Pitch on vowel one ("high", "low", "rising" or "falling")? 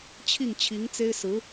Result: falling